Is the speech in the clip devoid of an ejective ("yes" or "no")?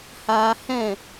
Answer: yes